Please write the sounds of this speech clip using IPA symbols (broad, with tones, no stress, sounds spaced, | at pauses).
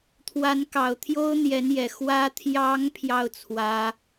t̪ʰ w a˧˥ n k ɑ˨˩ ʊ̯ t̪ʰ j o˥ ʊ̯ n̪ j ɛ˧˥ n j ɛ˨˩ x w ä˧˥ t̪ʰ j ɑ˧˥ ŋ pʰ j ɑ˥˩ ʊ̯ t͡sʰ w ä˧˥